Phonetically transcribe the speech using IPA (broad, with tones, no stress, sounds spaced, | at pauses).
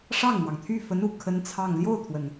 ʂ ɑ˥˩ ŋ n̪ w ɑ˩ ŋ t̪ʰ y˥˩ f ə˧˥ n u˨˩ kʰ ə˥ n t͡sʰ ɑ˥˧ ŋ l j o˥˩ ʊ̯ t̪ʰ w ə˩ n